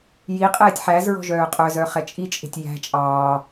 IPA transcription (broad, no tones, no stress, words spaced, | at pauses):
ji qʼɛːtʲħæzɹɔ̤ ʒœːqʼœzœ χɛt͡ʃʼit͡ʃʼe̤tʲ jæ̤ t͡ʃʼɑː